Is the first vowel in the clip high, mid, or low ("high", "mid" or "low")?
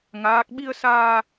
low